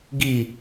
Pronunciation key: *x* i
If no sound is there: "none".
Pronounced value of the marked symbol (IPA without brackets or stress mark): ɡ